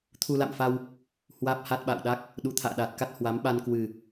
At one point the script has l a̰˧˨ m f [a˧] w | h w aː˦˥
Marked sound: correct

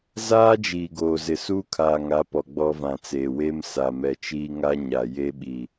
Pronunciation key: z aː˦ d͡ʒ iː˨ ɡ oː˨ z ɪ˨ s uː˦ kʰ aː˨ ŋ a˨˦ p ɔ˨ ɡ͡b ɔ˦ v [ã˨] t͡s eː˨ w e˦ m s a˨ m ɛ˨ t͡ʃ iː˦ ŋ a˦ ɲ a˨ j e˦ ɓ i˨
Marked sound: correct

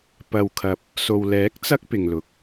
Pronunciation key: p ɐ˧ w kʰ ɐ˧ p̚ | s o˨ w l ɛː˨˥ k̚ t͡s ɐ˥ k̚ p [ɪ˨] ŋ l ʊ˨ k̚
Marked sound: correct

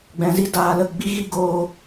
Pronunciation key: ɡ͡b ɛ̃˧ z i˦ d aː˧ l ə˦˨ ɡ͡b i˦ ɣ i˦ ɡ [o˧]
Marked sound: incorrect: oː˧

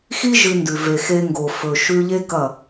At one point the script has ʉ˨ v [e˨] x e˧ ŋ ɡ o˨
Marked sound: correct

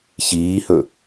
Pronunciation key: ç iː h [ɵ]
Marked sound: correct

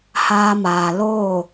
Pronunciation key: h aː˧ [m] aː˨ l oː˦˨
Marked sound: correct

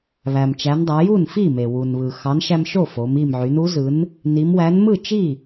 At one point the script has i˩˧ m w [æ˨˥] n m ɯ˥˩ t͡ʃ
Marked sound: correct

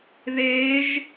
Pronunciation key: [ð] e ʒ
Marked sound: correct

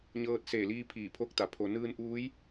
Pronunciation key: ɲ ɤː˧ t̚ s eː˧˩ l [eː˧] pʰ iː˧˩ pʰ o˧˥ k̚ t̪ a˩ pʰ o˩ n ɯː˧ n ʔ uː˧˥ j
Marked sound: incorrect: iː˧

